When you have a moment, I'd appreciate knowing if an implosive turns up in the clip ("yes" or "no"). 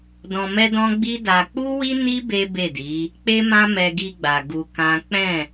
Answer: no